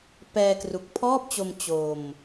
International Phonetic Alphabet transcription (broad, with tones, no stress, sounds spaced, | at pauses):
p ɛː˧ k r u˨˩ k̚ pʰ ɔː˥˩ p̚ t͡ɕ o˧ m t͡ɕ o˧ m